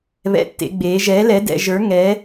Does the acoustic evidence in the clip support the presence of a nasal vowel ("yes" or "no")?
no